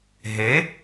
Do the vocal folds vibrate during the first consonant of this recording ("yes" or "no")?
yes